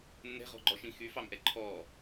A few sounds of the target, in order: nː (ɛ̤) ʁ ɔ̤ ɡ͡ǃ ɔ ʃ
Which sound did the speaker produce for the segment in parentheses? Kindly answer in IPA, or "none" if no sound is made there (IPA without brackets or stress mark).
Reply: ɛ̤